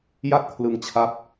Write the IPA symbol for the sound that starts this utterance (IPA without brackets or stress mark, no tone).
j